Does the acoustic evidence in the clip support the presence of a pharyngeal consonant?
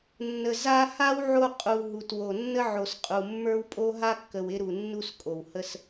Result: yes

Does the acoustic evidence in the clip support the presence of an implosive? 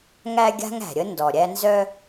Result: no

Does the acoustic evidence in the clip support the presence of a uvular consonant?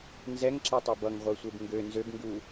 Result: yes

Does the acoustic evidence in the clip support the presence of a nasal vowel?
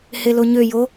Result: no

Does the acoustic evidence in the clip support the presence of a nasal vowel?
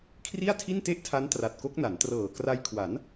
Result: no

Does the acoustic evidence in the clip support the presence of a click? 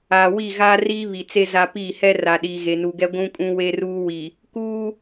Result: no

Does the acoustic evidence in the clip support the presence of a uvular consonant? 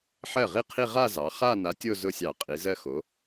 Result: yes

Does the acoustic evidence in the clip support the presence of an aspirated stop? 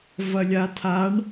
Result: yes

